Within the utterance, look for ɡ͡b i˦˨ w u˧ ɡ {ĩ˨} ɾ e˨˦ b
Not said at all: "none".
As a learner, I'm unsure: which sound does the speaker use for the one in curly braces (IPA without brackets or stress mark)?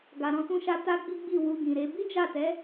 ĩ˨